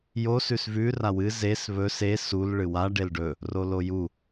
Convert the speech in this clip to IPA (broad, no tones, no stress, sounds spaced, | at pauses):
j o s ʉ s v ʉ r a w ɨ z e s β ɵ s e s u l ɭ ɨ w a ɖ e l ɖ ɵ | r o l o j u